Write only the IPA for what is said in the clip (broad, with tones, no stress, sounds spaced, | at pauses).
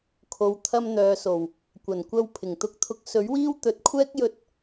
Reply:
kʰ o˨ w t̪ʰ ɐ˧ m n̪ œː˨ s o˨˩ w | kʷ ɐ˨˩ n kʷ ɐ˧ w pʰ ɪ˨˩ ŋ t̪ ʊ˧ k̚ t̪ʰ ʊ˧ k̚ s ɵ˨˥ ɥ w iː˥ w t̪ ɵ˨˥ t̚ kʷʰ ɛː˥ k̚ j ɵ˧ t̚